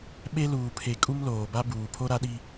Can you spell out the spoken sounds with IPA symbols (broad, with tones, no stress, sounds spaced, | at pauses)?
ɓ e˦ l uː˨ pʰ e˨ kʼ u˦ m l oː˨ b a˦ b uː˨ pʰ o˦ ɾ a˦ ɗ i˦